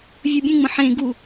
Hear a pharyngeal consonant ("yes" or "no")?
yes